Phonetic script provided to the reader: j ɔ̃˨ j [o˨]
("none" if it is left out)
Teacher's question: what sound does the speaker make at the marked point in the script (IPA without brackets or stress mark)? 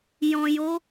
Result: o˨˦